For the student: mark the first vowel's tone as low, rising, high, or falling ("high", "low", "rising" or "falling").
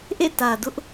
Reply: falling